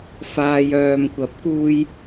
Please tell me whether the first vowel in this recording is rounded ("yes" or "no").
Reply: no